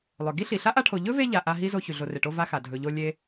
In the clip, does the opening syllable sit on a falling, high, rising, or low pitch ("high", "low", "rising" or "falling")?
low